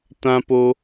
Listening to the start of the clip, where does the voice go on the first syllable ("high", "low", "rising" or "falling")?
high